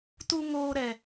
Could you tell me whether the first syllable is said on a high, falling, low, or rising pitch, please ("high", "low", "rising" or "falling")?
low